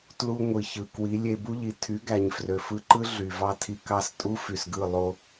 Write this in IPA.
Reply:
t l u˧ ŋʷ i˨ ç ɯ˨ k w i˨˦ lʲ e˧ b u˦ ʎ i˨ tʰ y˨˦ ɡ æ˨ ɲ f r ø˨ f ɯ˧ ǃ ɯ˦ ɮ y˨ v ɑ˦ tʰ i˧ k ɑ˦ s tʼ u˦ f y˨ s ɡ ɯ˦˨ lˠ o˧

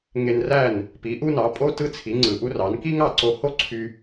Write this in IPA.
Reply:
ŋ e˧ n r æ˥˩ n | p i˩˥ ʔ u˥ n ɑ˩˥ pʼ o˥ t ɯ˥ t͡sʰ i˩˥ ŋ͡ǀ ɯ˩ ʔ u˥ r ɑ˩˥ n k i˥ ŋ ɑ˥˩ ǀ o˧ h o˥ ǀʰ y˧

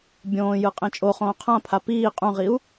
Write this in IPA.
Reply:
bʲ õː j ɯ qʼ ẽ t͡ʃʼ o χ õː qʰ ã pʰ a p iː qʼ ũ ʁ i u̯

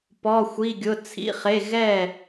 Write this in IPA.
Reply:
p ɔ˩˧˩ xʷ i˩˧˩ ɡʲ ʊ˩˧˩ t͡sʰ ḭ˩˧˩ χ e˩˧˩ ɣ ɛ˧˩

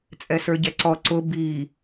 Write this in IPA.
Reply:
t͡sʼ ɛ s ə˞ ɟ ɛ ǀ ɔ ǀ ʊ b i

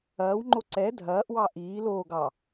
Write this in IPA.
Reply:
ɐː w ŋ͡ǃ o ǀ ɛ dʱ ɐː ʔ w ɑ ʔ iː l oː ɡ ɑ

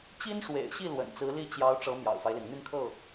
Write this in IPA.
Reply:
t͡ɕ i˥ n ʂ w ḛ˨˩ ɪ̯ ɕ i˥˩ l w ə̰˨˩ n t͡s ɹ̩˧˥ l i˥ t͡ɕ j ɑ˧˥ ʊ̯ ʈ͡ʂ ɤ˧˥ m j ɑ̰˨˩ ʊ̯ f a˦ ɪ̯ l i˩ n n̪ y˥˧ n kʰ ɤ˥˩

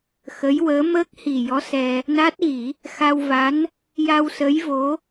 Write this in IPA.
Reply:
x ə˧˥ j w əː˧˥ m əː˦˥ k̚ h i˨˩ j ɔ˧˥ s ɛ˧ | n a˦˥ t̚ ɣ i˨˩˦ | x a˧ w v a˧˥ n | j a˧ w s ə˧˥ j v o˧˥

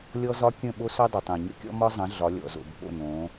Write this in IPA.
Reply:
lʲ ɔ˦ z ɒ˦ kʲ ə̃˦˨ ɓ o˦ s o˦ dˤ o˨ tˤ ɛ̃˨ ɲ ə̰˦ kʲ ɔ̰˦ m ɒ˦ zˤ ə̃˨˦ ɮ ɒ˨˦ lʲ ɔ̰˨ z o̰˨ bʱ o̰˦˨ n õ˨˦

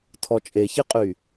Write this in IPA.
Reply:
tʰ ɔ t͡ʃʼ e ç i qʼ y

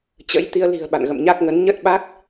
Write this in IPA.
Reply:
t͡ɕ ə̰˧˥ j t̪ i˧ ə̯ l i̤˨˩ ə̯ ɓ a̰˧˨ n ɣ ə̰˧˨ m ɲ a˦˥ k̚ ŋ ə˨˦ n ɲ ə˦˥ t̚ ɓ a˦˥ k̚

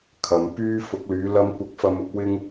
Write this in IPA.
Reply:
kʰ ɐ˨ m p yː˧ f ʊ˨˥ k̚ l yː˨˧ l ɐ˥ m kʷ ɐ˥ k̚ f ɐ˥ m ʊ˥ k̚ w ɪ˥ ŋ

